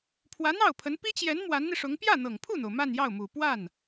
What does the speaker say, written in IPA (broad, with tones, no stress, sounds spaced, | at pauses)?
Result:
pʰ w ä˧˥ n̪ ɑ˥˩ ʊ̯ pʰ ə˧˥ n p i˥ t͡ɕ j ɛ˧˥ n m w a˧˥ n n̪ i˧ ʂ ʊ˧˥ ŋ p j ä˥˩ n̪ ɤ˨˩ ŋ pʰ u˥˩ n̪ o˩ ʊ̯ m a˥˧ n j ɑ˥˩ ʊ̯ m u˨˩ p w a˥˩ n